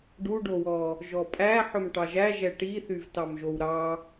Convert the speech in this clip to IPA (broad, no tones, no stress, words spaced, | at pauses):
ɖuɖowɔ | ʒɔpʼæ ħɵmʈɑʒæ ʒɛʈiθyv tɑmʒowɾɑ